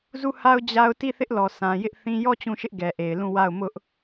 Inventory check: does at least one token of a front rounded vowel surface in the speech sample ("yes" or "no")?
no